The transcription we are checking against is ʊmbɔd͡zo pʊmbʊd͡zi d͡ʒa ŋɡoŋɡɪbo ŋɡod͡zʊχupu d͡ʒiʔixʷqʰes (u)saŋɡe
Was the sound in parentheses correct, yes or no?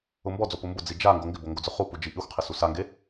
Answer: yes